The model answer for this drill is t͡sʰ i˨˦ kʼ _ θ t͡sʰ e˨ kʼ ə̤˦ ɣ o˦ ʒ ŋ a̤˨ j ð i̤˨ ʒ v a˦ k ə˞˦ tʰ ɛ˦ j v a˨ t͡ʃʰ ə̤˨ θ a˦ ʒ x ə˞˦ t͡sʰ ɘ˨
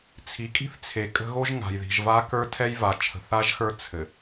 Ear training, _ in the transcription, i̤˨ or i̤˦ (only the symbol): i̤˦